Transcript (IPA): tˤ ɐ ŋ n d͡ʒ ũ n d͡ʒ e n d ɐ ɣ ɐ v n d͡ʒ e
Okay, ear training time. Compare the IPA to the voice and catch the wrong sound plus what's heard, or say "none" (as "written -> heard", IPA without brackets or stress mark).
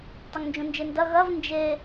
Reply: none